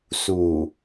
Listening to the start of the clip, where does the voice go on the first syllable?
low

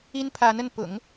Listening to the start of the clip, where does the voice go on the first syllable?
high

